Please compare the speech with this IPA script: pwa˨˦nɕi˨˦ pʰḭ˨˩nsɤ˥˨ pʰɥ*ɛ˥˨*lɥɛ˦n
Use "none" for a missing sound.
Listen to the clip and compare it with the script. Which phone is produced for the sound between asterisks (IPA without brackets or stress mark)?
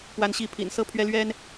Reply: ɛ˦